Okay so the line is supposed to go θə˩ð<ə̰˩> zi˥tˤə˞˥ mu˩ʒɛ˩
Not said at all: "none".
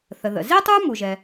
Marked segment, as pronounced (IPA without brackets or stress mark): ə̰˩